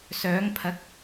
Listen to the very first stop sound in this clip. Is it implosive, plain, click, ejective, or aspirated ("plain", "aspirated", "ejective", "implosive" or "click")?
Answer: aspirated